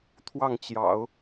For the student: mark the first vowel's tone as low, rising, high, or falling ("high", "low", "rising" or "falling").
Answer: falling